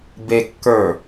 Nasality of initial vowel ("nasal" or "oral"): oral